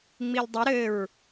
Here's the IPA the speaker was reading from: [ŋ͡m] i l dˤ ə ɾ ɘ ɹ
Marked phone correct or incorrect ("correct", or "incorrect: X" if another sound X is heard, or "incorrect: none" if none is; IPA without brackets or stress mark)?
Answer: correct